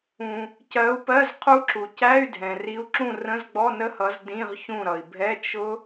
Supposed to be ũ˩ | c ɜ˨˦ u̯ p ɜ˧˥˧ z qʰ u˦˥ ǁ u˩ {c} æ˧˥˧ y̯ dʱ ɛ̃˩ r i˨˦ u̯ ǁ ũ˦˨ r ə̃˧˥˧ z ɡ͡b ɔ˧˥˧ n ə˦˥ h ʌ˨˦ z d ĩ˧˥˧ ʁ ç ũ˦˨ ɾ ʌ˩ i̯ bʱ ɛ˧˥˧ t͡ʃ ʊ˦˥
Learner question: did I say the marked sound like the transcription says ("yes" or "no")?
yes